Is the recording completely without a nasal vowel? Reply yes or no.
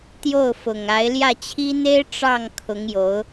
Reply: yes